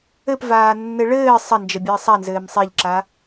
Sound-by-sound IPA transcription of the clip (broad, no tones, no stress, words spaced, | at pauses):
ɘpvaːnːɘ ɭɘː sˤɐnd͡ʒəbʲəː sˤanzɘːm sˤeʎǁa